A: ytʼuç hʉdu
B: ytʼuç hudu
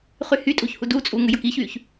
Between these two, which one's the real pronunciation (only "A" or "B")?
B